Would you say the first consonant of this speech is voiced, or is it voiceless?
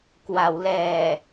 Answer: voiceless